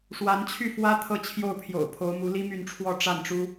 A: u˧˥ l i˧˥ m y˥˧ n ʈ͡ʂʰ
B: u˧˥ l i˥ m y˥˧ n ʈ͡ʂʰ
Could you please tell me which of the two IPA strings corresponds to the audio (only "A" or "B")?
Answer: B